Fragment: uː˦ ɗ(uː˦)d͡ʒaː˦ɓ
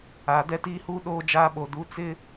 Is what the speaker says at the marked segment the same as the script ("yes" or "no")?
no